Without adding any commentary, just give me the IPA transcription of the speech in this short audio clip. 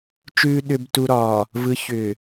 t͡ʃ ʉː˨ ɗ ʏː˨ b t u˨ ɾ ɒː˨ | v ɯ˨ ç ʏː˨

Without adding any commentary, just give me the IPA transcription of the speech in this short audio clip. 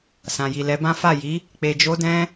s ã˨ j i˨ l ɛ˨˦ b ã˦ f a˦˨ j i˨˦ | k͡p e˧ d͡ʒ o˦ d ɛ̃˦

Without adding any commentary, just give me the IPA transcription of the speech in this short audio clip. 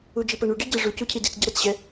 u d͡ʒ i p ɐ ɳ u ɖ i ɟ e ʐ u c u cʰ i d i t͡s ɟ ɐ ɾ ɤ t͡s ɕ ɛ

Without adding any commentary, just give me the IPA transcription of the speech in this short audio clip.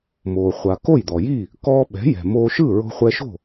m oː˩ χʷ a˩ k o˥˩ j d̪ ɔ˩ j i˥˩ | k ɔː˧ ɓ ɛ̤˩˥ j ɛ̤˩ m oː˧ ʃ ɯ˥˩ ɹ o̤˧ χʷ ɛ˧ ʃ o̤˥˩

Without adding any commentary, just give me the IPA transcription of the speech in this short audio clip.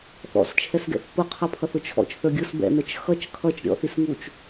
θ ɔ̰ s t͡ʃʰ ɛ s ɡ ɛ̰ θ p ʊ qʰ ʌ pʰ ʌ θ ʊ t͡ʃʰ ɔ̰ t͡ʃ θ ə˞ ɡʲ ʊ s b ɛ̰ n ə˞ t͡ʃ x ʌ t͡ʃ kʰ ʌ t͡ʃ ɾʲ ɔ̰ θ i s ŋ u t͡ʃ

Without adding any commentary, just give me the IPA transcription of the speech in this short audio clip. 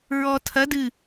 ɹ ɔ tʰ ɐ d ɨ

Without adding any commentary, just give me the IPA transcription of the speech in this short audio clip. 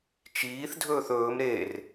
t͡ʃ iː θ dʱ ɵː θ ɵː m ɾ e r

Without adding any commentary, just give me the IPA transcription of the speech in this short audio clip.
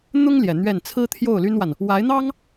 n̪ ʊ˥ ŋ l j ɛ˨˩ n̪ ɥ ɛ˥˩ n t͡sʰ ɹ̩˥ t̪ʰ j o˥˩ ʊ̯ l y˥ n w a˨ n | w a˧˥ ɪ̯ n̪ ɑ˥ ŋ

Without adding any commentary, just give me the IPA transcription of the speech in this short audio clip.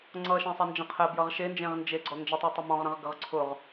ŋ͡ǀ ʌ ʃ ɛ̃ sˤ ʌ n d͡ʒ ə̃ qʰ ɛ b j ʌ ʁ ʃ e n d͡ʒ ẽ ʁ n d͡ʒ e ɡ͡ǀ ɔ n d͡ʒ ɛ tˤ ɛ tˤ ə m ɔ̃ ʁ ɾ ə̃ ʁ ɡ ə ʁ ǀʰ ʊ ʁ

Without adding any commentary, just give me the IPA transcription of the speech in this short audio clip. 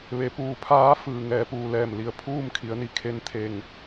ʋ e˩˧ p uː˩ pʰ aː˧˥ f ɯː˩ ŋ ɛː˩˧ p uː˩ l ɛː˧˩ m l i˩ ə̯ pʰ uː˥˨ m kʰ i˩˧ ə̯ n i˩ kʰ e˧˥ n t̪ʰ e˧˩ ŋ

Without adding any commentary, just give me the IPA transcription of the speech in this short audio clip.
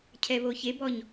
cʰ ɛ β o ç e b ɔ ɲ

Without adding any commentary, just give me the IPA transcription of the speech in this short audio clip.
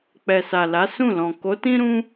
k͡p ɛ˨ s a˨ l a˨˦ s ũ˦˨ l ɔ̃˨ k o˨˦ t ĩ˦ ɾ ũ˦

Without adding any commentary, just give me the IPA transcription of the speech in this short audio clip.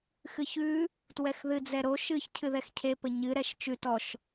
x ɨ ç ʉ | t w ɛ x ð ɨ d͡z ɛ ɾ o ʃ ɨ ç cʰ ɨ ð ɛ x cʰ e p ə ɲ ɨ ɾ ɛ ʃ t͡ʃ ʉ t ɔ ʃ

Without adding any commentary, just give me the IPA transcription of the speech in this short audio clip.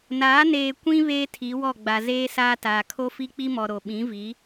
n aː˨˦ n eː˨ kʷ ĩ˦ β eː˦ tʰ i˨˦ w ɔ˦˨ ɡ͡b a˨ z eː˦ s aː˦ t aː˨ kʰ o˦ f i˦ k͡p i˦ m ɔ˨ ɾ o˨ ɓ ĩ˨˦ v i˨˦

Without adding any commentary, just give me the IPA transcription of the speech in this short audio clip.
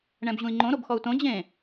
ɳ ɛ̃ b ʑ ũ i̯ ŋ͡ǃ õ ɾ o b x ɔ u̯ t õ d͡ʑ ẽ

